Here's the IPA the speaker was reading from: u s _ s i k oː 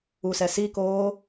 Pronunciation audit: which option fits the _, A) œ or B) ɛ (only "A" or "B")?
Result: B